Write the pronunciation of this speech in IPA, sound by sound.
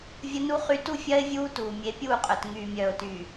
vʲ ə˦ n u˦ χ y˦ t u˦ fʲ ɜ˦ ɪ̯ vʲ uː˦ t uː˨ mʲ e˨˦ pʲ uː˦˨ qʼ œ˨ t ŋ yː˨ mʲ œː˨ ʊ̯ t yː˨

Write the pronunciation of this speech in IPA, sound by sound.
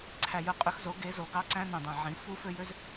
ǀʰ æ˨˩ j ɯ˩˥ qʼ y˩˥ x z o˩˥ ɡ e˩˥ z o˩˥ ɡ ɑ˦˥ ǀ æ̃˦˥ n õ˨˩ dˤ æ̃˨˩ ʕ ĩ˩˥ f u˦˥ f ø˦˥ j ø˦˥ z

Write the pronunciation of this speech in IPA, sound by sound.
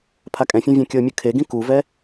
pʰ a kʼ ɛ̃ fʲ ɛ̃ vʲ ɛ̃ kʲ ɤ mʲ ɯ kʰ e ɡ ĩ k u v ɛ

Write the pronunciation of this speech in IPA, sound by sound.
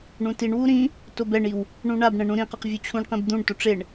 ɳ ũ t i ɳ w u ɾ ĩ | t o b ɛ ɳ i w | ɳ ũ ɳ a b ɳ ɛ̃ ɳ ũ ɾ ĩ q ʌ q vʲ u t͡ɕʰ ũ ɳ q ĩ b d̪ ũ ɳ t o ʈ͡ʂ e ɳ

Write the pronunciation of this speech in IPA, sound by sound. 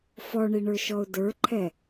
f ɔ ɳ i ɳ ə˞ ʃ ɔ ʊ̯ d ə˞ ǃʰ ɛ

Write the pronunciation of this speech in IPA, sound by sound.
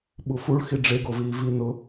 ɓ u f u ɭ x i ɖ͡ʐ e ɡ o v iː v i n ʊ

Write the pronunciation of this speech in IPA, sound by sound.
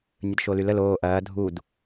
nʲ ə d ʃ o l y l ə l oː ʔ ɐː dʱ u d

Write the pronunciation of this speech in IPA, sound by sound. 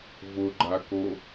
v ʊ ɡ͡ǃ a k o

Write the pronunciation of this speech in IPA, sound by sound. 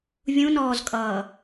vʲ ũ n ɔː z kʼ ʌː

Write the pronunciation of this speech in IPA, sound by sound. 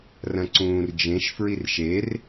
r ɐ̃ ǀ ũː r d͡ʒ ẽ ʃ f ɹ i r ʃ e r

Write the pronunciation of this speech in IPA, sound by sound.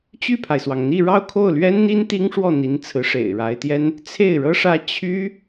t͡ɕ y˥˩ pʰ a˩ ɪ̯ s w ɑ˩ ŋ n̪ i˥˧ ɻ ɑ˥˧ ʊ̯ kʰ o˥˩ ʊ̯ l ɥ ɛ˥ n n̪ i˥ n t̪ i˥ ŋ ʂ w ɔ˥˩ n̪ i˧˥ n t͡sʰ ɹ̩˧˥ ʂ ḛ˨˩ ɪ̯ ɻ a˧˥ ɪ̯ t̪ j ɛ˥ n | t͡sʰ e˥˩ ɪ̯ ɻ ɤ˥ ʂ ä˥ t͡ɕʰ y˥

